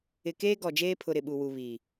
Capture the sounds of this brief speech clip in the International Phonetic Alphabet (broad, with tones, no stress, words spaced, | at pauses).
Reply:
ɪ˨ keː˦ɡɔ˨d͡ʒeː˦pʰʊ˨ ɾɪ˨ɓu˨ wu˨βi˨